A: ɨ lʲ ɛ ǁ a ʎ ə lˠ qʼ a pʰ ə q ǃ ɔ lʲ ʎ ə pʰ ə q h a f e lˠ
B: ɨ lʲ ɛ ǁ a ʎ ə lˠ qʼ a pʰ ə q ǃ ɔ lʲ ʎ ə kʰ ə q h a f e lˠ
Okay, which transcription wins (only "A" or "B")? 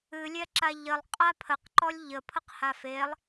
A